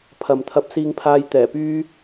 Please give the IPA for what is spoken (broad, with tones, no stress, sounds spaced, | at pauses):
pʰ ɐ˨ m t̪ʰ ɐ˧ p̚ s iː˧ ŋ pʰ aː˧ j t̪ ɛː˨˩ p yː˥